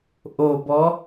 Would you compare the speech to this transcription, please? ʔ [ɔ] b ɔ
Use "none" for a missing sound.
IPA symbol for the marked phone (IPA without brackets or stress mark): o